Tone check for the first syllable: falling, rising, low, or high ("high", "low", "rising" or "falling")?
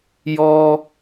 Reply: high